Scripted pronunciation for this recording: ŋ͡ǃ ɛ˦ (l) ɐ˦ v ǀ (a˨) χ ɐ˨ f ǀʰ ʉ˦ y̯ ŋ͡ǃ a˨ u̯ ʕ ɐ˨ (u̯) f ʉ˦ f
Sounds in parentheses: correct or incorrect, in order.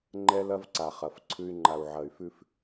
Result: correct, correct, incorrect

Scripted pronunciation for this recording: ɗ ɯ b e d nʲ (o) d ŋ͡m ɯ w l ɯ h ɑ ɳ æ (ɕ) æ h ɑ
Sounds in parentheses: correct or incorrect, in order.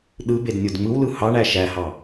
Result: correct, incorrect

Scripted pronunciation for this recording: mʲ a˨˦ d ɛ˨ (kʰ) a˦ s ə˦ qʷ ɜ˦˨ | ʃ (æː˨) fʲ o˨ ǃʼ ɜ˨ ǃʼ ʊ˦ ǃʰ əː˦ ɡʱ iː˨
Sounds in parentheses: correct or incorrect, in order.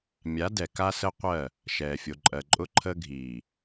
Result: incorrect, incorrect

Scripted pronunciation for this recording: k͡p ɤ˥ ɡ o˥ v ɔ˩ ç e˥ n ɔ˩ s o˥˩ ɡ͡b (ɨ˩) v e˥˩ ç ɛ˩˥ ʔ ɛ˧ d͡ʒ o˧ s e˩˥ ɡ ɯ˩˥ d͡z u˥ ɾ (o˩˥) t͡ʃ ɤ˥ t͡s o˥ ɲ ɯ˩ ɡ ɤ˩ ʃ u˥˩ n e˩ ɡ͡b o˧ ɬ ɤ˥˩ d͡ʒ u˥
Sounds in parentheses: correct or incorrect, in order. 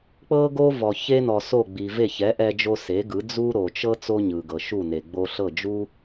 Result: incorrect, incorrect

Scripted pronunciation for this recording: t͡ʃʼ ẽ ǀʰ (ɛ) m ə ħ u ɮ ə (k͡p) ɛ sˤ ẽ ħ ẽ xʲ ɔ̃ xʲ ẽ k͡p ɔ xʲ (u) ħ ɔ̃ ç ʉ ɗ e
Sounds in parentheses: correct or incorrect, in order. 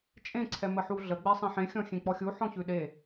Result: correct, incorrect, correct

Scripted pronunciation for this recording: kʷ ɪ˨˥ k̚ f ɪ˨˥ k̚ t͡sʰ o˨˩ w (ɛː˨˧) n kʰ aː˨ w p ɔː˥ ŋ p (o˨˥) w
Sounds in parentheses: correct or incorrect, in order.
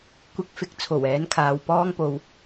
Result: incorrect, incorrect

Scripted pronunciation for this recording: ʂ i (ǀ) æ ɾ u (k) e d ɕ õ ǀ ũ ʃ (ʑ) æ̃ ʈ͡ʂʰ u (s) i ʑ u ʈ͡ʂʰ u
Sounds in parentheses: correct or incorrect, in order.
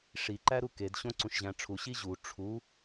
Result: incorrect, correct, correct, incorrect

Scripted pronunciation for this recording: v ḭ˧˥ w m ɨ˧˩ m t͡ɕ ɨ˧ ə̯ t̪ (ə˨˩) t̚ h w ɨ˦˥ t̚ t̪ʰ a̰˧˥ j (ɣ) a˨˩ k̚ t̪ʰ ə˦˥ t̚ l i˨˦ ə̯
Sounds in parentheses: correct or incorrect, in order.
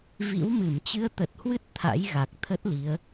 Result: correct, correct

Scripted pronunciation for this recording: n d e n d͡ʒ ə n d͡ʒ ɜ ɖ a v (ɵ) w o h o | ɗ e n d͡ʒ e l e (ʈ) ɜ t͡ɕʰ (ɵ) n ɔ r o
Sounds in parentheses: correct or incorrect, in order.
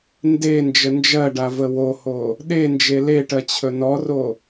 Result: incorrect, correct, correct

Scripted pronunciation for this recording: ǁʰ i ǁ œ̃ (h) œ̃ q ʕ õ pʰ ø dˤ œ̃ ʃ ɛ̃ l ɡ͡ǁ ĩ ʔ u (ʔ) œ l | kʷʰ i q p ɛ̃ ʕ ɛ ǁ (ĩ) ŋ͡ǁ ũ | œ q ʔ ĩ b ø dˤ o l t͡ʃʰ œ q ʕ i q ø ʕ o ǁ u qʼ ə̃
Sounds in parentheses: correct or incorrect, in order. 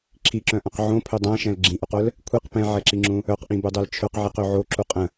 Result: incorrect, incorrect, incorrect

